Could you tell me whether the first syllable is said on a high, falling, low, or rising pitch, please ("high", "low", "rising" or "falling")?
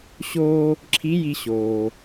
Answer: high